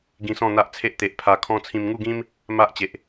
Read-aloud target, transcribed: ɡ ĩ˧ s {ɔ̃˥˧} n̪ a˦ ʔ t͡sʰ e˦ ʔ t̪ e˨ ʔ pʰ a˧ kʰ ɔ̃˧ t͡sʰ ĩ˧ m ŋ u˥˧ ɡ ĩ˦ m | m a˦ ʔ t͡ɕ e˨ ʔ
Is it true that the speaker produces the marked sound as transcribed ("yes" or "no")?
yes